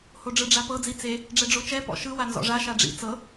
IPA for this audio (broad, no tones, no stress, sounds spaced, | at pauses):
h o ɖ͡ʐ ɯ ɖ͡ʐ a p ɤ d͡z i t͡s e | ɖ͡ʐ ɛ ɖ͡ʐ o t͡ʃ ɛ p ɔ̰ ʃ ɯ w a n z ɔ̰ ʐ a ʃ a ɖ͡ʐ ḭ t͡s ɤ